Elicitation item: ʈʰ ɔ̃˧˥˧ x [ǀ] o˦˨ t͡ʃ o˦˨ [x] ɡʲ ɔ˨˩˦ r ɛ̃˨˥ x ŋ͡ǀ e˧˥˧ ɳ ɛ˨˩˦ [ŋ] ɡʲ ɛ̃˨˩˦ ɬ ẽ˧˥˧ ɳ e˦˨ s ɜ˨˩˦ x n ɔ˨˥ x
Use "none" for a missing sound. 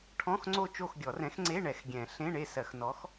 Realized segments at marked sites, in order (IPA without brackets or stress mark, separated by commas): ŋ͡ǀ, x, x